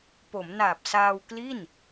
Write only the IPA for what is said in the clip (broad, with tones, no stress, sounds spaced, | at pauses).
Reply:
p o˩˦ m n aː˨˩ p̚ s aː˧ w k l i˥˩ n